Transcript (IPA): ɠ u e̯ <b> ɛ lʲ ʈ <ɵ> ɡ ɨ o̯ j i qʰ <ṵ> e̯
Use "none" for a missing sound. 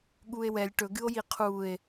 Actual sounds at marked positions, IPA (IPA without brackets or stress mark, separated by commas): w, ɵ, u